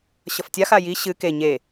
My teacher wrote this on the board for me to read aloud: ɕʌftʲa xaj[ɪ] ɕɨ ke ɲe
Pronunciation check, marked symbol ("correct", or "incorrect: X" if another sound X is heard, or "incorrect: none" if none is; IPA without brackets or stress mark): incorrect: i